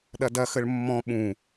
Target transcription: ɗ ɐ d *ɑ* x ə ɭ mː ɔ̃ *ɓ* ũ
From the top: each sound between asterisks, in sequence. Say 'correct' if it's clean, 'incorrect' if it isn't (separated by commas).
incorrect, correct